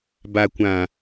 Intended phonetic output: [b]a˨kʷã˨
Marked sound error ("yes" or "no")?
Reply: no